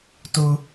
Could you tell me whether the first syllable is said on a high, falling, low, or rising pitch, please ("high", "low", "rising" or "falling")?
high